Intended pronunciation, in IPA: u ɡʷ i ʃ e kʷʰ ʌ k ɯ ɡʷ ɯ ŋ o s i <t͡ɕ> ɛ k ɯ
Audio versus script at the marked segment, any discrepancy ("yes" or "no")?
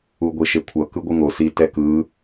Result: yes